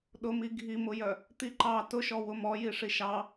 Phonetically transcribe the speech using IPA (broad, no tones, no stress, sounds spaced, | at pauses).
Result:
ɗ ʊ m i ɡʱ i m ʊ j œ | t̪ i ǃ ɑ t ʊ ʃ ɔ w ʊ m ɔ j i ʂ i ʃ ɑ